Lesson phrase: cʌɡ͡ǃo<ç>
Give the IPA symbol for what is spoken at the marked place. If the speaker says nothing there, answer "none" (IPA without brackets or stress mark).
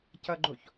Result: ç